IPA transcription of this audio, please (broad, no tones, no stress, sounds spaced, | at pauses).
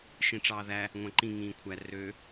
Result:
ʃ ĩ ʈ͡ʂ ɑː ð æ | ŋʷ æ̃ ǃ ĩ ŋ ĩː kʷʰ æ r ø